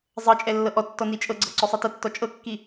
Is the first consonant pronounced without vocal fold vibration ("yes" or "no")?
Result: no